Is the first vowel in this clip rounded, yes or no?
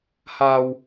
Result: no